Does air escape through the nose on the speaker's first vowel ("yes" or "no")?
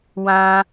yes